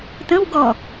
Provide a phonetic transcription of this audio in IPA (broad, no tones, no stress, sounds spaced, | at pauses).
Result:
t̪ ə̃ w ɡ ɔ